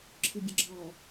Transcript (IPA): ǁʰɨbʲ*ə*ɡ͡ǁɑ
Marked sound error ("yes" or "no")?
no